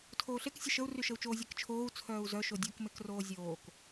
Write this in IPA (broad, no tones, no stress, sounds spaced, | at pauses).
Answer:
tʰ oː ɬ e k sʲ ə ʃ ə u̯ r y ʃ ə u̯ t͡ʃ oː zʲ e k t͡ʃʰ oː u̯ t͡sʰ œː u̯ z œ ʃ o dʲ o k m e k r oː zʲ oː k